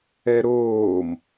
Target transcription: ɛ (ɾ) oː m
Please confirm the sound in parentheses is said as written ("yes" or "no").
yes